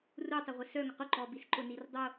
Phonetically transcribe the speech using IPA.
r u tˤ ə ʁʷ ɪ s œ ŋ ʊ q ʊ ǃ ɔ b i s ǃ ʊ n i r dˤ o

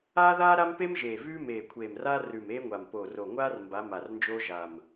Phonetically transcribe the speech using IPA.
aː˥ ð aː˥ ɾ a˥ m p e˥ m ʒ eː˨˩ v ʉː˥ m eː˨˩ kʷʰ eː˨˩ m r aː˥ r ʉ˨˩ m eː˥ ŋʷ a˨˩ m p oː˨˩ r o˨˩ ŋʷ aː˥ r m b a˧˥ m a˨˩ r n d͡ʒ oː˥ ʒ a˨˩ m

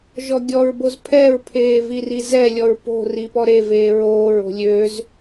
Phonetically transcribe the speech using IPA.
ʒ ɔ ɡʲ ɔ ɹ b o z pʰ ɛ ɹ pʰ eː v i r i z ɛ lʲ ɔ ɹ p o̤ r i p ɔ ɾ e v eː ɹ oː ɹ o̤ lʲ ø z

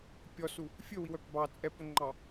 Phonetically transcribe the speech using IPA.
pʲ ɔ s u | fʲ ɵ w i w œ p b ɑ t͡sʼ ɛ p ɵ ŋ͡ǃ ɑ

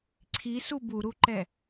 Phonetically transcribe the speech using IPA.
ǀʰ i s u b u ɾ u ǃ ɛ

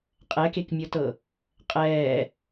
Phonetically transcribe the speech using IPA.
qʼ ɛ k e k mʲ ɤ t ɤ | qʼ ɛː

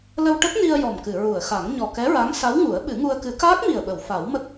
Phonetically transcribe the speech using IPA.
l ə˧ w ʈ ə˦˥ k̚ n i˧ ə̯ j ɔ˨˩ m k ɨ˨˩˨ ɹ u˨˩˨ ə̯ x a˨˩˦ ŋ ɲ ɔ˨˩ k ɛ˧˥ ɹ a˧˥ ŋ s a˧˥ w ŋ u˨˩˦ ə̯ ɓ ɨ˨˩˦ ŋ u˧ ə̯ k ɨ˨˩˦ k aː˦˥ k̚ m i˨˩ ə̯ ɓ ə˨˩˨ w f a˨˩˦ w m ə˦˥ k̚

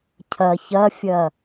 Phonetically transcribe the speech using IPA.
cʰ ɐ ç ɐ fʲ ɐ

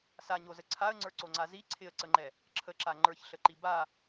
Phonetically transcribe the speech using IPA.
s a ɲ o z ə ǀʰ a ə̯ ŋ͡ǀ ə˞ ǀ o ŋ͡ǀ a z i ǀʰ ɪ ə̯ ǀ ə ŋ͡ǃ ɛ | ǁʰ ə ǁ a ŋ͡ǃ ə˞ ç ɬ ə ǃ i b a

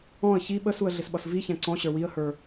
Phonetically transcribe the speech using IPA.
ɔ̃ ə̯ ç i ɓ ə s u ə̯ ɮ ɪ s ɓ ʌ s v i ç æ̃ ǀ ɔ̃ ɕ ə˞ w i ə̯ h ə˞

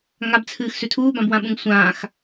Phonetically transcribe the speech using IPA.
ŋ a b t͡sʰ ɨː x s ʉ tʰ uː b ã b w ã ɓ ũ ŋ sʷ ãː x

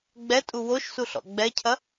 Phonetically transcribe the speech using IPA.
ɡ͡b ɛ tʼ u w o ʃ s u ɬ ɔ̰ ɡ͡b ɛ cʰ ɐ

